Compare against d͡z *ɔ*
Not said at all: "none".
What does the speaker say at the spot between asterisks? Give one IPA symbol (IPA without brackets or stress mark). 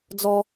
ɔ